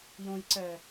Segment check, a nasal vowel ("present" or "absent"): present